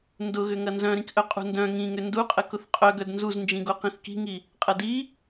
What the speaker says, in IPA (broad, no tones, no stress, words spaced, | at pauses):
ndʊɣʏ ŋɐnzœ̃ɾĩkʔœ qʼṳndœ̃ ŋĩŋʏ nduqʼə kʊθqʼœɡœd nzuznd͡ʒĩɡo qĩθki̤ŋi | qʼɐdi